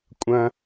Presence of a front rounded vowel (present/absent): absent